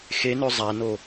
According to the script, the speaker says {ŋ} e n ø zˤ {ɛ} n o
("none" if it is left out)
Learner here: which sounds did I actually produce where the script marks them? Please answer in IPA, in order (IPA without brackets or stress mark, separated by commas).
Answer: x, æ